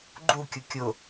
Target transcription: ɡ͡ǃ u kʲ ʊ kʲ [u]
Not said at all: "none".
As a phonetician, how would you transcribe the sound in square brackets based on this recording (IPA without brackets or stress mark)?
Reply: ʊ